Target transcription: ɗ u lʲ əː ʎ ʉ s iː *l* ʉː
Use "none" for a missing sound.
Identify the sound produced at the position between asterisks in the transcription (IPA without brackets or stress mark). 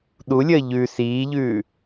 ʎ